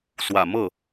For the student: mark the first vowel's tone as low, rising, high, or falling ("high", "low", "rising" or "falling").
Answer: low